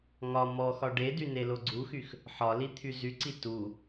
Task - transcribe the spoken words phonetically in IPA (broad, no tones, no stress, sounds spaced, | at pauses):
ŋ ɒ m ɔ x ɒ ɖ e d y n e l o ɡ͡ǀ u x y x | ħ ɒ l i t̪ʰ y z y ǀ i t u